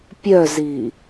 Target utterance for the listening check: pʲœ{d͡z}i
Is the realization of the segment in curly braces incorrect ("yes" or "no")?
yes